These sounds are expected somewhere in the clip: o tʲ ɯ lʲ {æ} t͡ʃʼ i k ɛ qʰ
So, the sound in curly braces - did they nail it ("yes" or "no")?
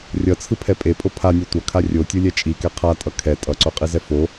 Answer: no